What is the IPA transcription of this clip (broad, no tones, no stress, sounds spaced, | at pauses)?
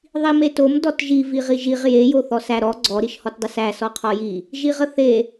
ðˤ i m e t o m d ɔ t ʒ i v i ʁ i ʒ i ʁ j e j o θ ɔ s æ ɾ ɔ ɡ͡ǀ ɔ ɾ i ʃ h ɔ t dˤ ə s æ s ɔ qʰ ɔ j i | ʒ i ʁ ə θ e